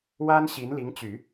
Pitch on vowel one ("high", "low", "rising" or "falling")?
high